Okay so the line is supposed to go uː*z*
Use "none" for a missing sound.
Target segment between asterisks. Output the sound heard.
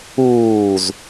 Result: z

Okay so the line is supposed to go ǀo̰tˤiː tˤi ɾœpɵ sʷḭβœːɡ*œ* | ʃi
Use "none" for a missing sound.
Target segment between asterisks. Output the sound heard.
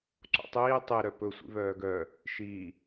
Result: œ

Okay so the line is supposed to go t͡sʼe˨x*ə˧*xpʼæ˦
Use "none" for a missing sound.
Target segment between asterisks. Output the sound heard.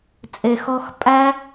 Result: ɔ˧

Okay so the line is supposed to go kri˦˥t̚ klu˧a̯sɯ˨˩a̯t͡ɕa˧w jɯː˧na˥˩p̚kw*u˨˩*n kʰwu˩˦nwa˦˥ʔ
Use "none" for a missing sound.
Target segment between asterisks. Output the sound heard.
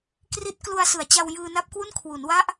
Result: u˥˩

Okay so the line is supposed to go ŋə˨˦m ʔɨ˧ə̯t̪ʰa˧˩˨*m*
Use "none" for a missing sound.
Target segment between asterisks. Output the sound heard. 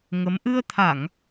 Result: ŋ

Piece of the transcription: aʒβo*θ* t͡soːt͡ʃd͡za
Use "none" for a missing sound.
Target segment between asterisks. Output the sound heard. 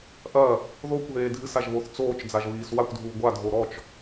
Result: θ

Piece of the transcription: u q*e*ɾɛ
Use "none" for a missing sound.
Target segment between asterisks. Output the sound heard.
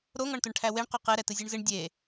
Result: e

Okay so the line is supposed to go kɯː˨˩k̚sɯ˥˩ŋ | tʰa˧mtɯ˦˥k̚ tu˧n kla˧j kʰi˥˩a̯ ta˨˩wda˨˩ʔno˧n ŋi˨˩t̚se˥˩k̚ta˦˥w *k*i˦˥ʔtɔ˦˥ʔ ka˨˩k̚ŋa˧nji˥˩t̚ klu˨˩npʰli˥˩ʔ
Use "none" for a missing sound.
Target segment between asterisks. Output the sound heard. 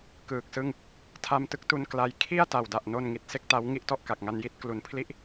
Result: ŋ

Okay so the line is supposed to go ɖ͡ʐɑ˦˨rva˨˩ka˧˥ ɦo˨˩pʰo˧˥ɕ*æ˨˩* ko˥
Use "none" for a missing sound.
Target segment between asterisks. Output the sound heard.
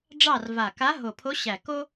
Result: æ˨˩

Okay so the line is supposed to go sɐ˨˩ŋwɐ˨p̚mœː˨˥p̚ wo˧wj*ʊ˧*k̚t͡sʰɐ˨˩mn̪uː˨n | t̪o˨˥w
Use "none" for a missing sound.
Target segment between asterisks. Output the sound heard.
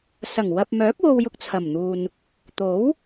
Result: ʊ˧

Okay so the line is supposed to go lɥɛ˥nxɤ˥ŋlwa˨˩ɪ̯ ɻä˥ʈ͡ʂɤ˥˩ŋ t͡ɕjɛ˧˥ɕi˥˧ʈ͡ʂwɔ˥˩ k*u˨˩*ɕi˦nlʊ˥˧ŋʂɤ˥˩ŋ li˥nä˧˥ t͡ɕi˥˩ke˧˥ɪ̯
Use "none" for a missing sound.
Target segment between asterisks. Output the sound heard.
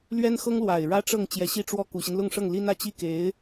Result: u˨˩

